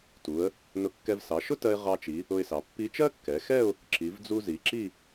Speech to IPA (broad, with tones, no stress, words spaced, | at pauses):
tu˩˧ə̯ | nʊ˧kːɛ˧v sɑ˩˧ʃʊ˥tɜ˧ɪ̯ ʁɑ˧t͡ʃi˩˧ | ʊ˧ɪ̯sɑ˩˧ pːi˧t͡ʃɜ˥kːɛ˩˧ xɛ˥˧ʊ̯ | ǁi˩˧vd͡zu˧ zi˩˧ǁi˥˧